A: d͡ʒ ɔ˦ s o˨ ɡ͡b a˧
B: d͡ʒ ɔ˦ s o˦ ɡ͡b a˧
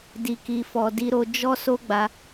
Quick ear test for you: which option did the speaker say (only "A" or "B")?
B